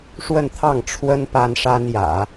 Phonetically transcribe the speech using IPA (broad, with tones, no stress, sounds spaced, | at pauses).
ʂ w ə˥˧ n t̪ʰ ɑ˥˩ ŋ ʈ͡ʂʰ w ə˥ n p a˥ n ʂ a˥ n j ä̰˨˩˦